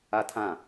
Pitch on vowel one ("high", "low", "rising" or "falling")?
high